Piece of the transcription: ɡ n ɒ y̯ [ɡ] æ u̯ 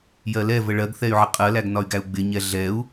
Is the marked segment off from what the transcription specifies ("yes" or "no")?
no